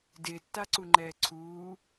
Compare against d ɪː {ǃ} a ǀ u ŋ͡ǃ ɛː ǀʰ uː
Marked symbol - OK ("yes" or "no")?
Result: no